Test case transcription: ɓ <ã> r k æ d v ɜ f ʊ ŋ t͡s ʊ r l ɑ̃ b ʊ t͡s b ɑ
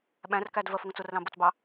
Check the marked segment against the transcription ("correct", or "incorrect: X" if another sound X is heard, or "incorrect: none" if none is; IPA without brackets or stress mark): incorrect: æ̃